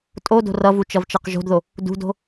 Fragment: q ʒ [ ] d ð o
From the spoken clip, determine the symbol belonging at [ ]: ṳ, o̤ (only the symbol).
o̤